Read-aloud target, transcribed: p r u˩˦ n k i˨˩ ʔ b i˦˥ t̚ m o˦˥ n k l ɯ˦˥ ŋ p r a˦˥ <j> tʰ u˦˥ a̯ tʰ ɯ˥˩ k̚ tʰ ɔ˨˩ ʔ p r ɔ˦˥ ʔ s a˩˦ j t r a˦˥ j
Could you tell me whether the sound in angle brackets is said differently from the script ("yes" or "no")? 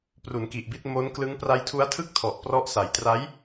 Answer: no